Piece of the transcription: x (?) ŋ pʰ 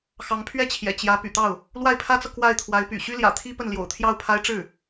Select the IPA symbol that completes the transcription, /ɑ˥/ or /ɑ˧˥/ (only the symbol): ɑ˧˥